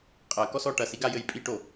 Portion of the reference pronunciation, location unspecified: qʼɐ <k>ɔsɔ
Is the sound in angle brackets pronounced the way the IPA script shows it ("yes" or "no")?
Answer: yes